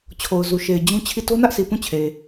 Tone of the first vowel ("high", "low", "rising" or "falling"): low